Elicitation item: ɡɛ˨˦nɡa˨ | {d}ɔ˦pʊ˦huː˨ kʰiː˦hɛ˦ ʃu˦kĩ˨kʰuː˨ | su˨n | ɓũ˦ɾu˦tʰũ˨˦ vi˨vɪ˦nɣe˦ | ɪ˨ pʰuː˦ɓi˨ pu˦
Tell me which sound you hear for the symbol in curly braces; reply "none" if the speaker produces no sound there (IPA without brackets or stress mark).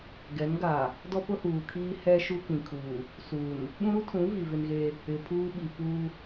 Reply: d